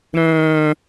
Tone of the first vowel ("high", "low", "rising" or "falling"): high